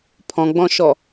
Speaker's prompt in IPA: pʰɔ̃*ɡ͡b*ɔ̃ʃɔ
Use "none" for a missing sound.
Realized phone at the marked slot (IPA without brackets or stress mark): ɡ͡b